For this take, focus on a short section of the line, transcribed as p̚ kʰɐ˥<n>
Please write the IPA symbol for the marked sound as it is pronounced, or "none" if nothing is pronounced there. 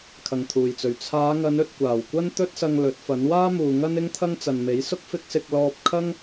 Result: ŋ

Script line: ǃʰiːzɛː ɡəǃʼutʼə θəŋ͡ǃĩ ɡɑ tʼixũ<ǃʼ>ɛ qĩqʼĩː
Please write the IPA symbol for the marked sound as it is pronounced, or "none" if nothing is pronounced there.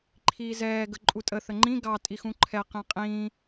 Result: ǃʰ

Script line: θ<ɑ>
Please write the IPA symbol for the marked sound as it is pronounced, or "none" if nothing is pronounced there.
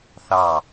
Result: ɑ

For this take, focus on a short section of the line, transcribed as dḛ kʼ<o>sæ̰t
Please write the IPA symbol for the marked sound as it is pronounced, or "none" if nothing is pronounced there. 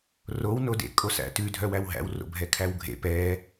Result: o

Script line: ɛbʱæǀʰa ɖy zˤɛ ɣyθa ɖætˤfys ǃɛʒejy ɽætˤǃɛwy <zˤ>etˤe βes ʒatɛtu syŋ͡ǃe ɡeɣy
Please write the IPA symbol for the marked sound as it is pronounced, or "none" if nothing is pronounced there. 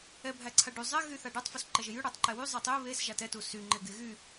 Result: zˤ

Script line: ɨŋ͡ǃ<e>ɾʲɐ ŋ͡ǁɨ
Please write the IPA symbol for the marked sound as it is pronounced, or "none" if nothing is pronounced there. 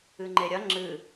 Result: e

